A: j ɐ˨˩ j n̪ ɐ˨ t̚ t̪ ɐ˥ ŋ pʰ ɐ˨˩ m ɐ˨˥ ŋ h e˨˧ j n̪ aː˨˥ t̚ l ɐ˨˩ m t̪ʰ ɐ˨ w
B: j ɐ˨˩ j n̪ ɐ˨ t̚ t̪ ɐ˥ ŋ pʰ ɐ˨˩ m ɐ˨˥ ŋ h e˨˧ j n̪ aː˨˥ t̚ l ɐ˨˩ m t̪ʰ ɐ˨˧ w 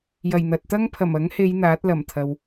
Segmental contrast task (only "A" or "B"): A